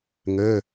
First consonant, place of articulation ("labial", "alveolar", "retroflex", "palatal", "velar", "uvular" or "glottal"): velar